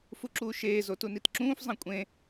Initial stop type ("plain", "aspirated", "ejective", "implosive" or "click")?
click